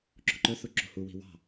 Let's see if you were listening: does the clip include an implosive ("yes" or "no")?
no